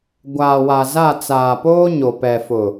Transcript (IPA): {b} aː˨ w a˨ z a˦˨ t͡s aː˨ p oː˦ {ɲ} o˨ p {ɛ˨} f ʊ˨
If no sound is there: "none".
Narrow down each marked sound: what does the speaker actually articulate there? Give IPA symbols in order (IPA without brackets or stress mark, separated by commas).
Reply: ɡʷ, ɲ, ɛ˨